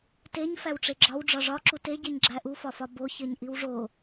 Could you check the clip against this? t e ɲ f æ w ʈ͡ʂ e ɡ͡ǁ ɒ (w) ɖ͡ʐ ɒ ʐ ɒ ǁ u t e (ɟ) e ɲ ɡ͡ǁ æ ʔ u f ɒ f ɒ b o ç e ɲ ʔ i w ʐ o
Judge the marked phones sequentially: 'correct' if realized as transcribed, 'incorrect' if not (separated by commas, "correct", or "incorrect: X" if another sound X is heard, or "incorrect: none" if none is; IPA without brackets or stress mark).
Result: correct, correct